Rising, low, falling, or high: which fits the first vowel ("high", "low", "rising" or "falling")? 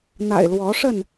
low